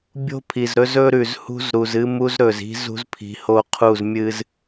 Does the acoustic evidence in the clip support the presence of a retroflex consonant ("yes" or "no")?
no